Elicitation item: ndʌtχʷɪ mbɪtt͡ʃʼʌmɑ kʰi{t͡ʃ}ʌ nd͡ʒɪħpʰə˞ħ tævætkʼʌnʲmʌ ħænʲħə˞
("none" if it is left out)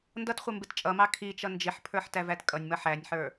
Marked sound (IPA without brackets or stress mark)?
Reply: t͡ʃ